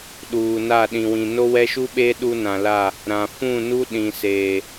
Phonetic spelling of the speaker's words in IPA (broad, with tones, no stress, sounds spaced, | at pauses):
ɗ uː˨ n a˦˨ ɗ ĩ˨ w ĩ˨ n o˦ w ɛ˦ ʃ u˦ ɓ eː˦ ɗ u˦ n ã˨ l a˦˨ | ɾ ã˨ f ũ˦˨ n u˦ ɗ ĩ˨ s eː˨